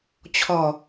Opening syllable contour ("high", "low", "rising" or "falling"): low